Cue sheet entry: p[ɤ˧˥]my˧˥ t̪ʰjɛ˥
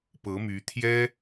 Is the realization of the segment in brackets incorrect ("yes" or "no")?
no